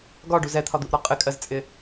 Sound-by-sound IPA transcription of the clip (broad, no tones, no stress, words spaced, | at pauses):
ɡɒɖu zɛt̪ʰɒd̪uʔɾɔ qʼɪkʼɜzt͡sʼɪ